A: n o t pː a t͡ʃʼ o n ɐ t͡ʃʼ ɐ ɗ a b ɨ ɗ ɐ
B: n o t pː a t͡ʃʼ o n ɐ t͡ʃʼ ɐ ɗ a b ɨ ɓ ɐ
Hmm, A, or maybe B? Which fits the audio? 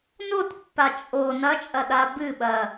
B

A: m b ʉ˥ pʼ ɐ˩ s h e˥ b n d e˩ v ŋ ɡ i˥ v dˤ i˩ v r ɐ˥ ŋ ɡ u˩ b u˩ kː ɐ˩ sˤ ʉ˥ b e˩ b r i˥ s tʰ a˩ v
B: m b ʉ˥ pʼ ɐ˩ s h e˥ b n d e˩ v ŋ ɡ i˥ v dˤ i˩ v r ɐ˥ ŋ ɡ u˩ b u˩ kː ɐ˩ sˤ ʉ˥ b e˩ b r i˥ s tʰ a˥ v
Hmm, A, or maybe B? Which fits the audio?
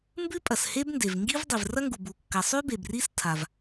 A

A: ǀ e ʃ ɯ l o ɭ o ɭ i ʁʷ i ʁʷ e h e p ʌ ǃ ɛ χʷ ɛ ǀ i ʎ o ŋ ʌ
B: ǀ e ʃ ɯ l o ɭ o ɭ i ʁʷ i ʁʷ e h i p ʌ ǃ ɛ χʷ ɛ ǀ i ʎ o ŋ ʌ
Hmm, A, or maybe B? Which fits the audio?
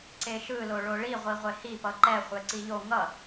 B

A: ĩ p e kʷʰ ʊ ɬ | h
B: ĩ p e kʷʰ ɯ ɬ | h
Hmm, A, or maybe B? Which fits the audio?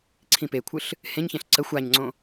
B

